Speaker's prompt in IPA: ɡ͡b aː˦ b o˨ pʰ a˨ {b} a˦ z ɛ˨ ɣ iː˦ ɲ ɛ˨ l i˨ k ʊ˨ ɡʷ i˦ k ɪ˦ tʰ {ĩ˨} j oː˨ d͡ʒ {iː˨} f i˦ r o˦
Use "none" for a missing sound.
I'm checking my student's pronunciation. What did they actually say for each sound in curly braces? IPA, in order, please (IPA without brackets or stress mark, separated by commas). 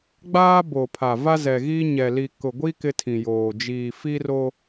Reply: v, ĩ˨, iː˨